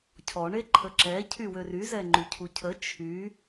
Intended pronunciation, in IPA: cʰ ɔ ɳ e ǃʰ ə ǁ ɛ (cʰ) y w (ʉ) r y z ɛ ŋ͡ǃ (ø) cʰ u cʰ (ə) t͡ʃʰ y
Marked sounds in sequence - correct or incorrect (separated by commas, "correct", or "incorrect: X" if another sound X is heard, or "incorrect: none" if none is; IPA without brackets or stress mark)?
correct, incorrect: ø, incorrect: y, correct